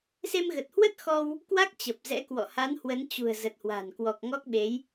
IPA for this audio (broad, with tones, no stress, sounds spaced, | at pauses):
s e˧ m ɣ ə˨˩ t̚ h w ə˦˥ t̚ x ɔ˧ w | k w a˦˥ k̚ t͡ɕ ə˨˩ p̚ z ɛ̰˧˥ k w ɔ̰˧˨ h a˨˦ n h w ə˨˦ n t͡ɕ ṳ˨˩ ə̯ z ə˨˩ t̚ h w a̤˨˩ n k w ɔ˨˩ k̚ ŋ ɔ˦˥ k̚ ɓ e˨˦ j